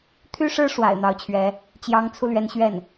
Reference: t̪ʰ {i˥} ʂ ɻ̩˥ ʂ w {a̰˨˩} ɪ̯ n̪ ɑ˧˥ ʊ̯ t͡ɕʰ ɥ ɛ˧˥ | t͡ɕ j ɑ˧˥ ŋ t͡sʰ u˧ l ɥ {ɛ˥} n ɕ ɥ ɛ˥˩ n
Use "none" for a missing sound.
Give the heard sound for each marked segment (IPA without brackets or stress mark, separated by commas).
y˥, a̰˨˩, ɛ˧˥